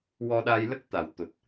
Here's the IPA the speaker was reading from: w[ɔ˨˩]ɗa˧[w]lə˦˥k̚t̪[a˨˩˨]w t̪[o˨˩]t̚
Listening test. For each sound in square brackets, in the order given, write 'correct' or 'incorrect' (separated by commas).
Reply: incorrect, incorrect, correct, correct